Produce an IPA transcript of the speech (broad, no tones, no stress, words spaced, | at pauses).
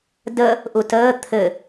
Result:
də | ʔutəː t̪ʰɘ